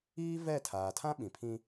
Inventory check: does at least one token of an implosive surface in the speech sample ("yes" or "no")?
yes